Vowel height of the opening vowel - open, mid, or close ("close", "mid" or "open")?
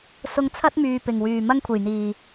close